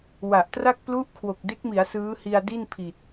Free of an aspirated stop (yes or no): no